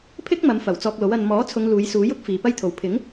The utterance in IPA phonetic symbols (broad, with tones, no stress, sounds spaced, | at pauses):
pʰ ɪ˥ k̚ m ɐ˨˧ m f ɐ˨˩ w t͡s ɔː˧ k̚ l o˨˥ w ɐ˧ n m ɔː˨˥ t͡sʰ ʊ˨˧ ŋ l uː˨˧ j s uː˨˥ j ʊ˥ k̚ f iː˨ p ɐ˥ j t̪ʰ o˨ w pʰ ɪ˨˥ ŋ